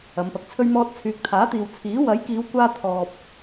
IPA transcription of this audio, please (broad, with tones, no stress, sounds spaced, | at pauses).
ɐ˨˧ m p ɐ˨ k̚ t͡sʰ ɵ˥ ɥ m ɔː˥ t̚ t͡sʰ yː˨ k̚ t̪ʰ aː˨˥ t̪ iː˨ w t͡sʰ iː˨˥ w ɐ˨˥ j k iː˨˧ w kʷ aː˧ t̪ʰ ɔː˨ p̚